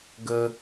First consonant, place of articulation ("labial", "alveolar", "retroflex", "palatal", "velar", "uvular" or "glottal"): velar